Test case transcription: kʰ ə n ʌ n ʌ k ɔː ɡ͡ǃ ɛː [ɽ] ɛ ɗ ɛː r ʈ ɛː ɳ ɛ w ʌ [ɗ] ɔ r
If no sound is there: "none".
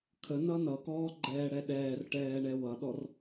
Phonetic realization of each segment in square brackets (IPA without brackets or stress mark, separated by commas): ɽ, ɗ